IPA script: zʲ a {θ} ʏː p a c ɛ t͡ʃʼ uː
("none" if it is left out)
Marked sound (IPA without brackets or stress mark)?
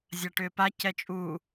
ʈ